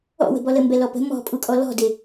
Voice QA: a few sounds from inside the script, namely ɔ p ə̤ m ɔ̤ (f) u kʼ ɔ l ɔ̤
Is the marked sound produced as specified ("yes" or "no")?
no